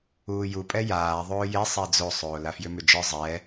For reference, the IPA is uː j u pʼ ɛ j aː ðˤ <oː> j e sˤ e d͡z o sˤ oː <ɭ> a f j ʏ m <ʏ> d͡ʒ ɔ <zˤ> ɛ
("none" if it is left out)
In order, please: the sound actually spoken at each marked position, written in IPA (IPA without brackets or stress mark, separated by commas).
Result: oː, l, ʏ, zˤ